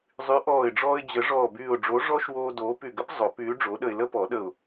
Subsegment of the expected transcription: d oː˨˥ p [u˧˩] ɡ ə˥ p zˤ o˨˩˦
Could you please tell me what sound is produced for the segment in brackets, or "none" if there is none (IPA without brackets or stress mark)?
y˧˩